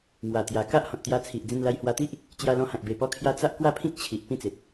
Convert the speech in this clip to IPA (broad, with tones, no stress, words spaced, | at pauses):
mwa˨˩t̪ja˨˩ ka˦ʔhɔ̃˨t̚t̪ja˧ t͡sʰi˨ʔ d͡zĩ˧nla˧jhwa˧t̪i˦ʔ | t͡ɕja˧lɔ̃˧hã˨k̚ be˨˩pɔ˧kʰja˧ t͡sa˦ʔkwa˥˧pʰĩ˦k̚ t͡ɕʰi˨ʔ pĩ˦t͡se˨t̚